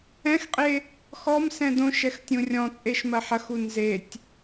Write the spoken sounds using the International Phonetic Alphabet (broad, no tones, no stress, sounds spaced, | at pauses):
ɛ̃ x qʼ e | x ɔ m s ɛ̃ d õ ʃ ɛ x tʲ ũ rʲ ɔ̃ t͡sʼ e ʃ m ɐ ħ ɐ x u n z e tʲ